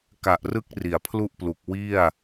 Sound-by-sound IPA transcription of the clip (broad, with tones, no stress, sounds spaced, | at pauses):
k a˨˩ ʔ r ɯ˦˥ k̚ r i˩˦ a̯ pʰ l u˥˩ ʔ p l u˨˩ k̚ w i˥˩ a̯